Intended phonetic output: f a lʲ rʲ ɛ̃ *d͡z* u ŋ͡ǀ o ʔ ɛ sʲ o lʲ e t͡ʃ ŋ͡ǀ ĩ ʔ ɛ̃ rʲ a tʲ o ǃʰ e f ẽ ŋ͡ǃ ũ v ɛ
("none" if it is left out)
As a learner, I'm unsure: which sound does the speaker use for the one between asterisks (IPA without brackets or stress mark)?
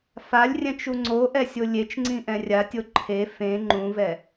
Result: t͡ʃ